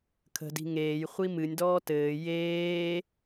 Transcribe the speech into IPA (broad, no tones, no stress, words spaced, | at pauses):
kʰə̤di̤ ŋeːjχʷi mɨnʲdɔː tɘː jeː